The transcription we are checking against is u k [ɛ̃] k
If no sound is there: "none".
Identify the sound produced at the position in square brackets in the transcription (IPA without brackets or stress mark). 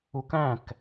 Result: æ̃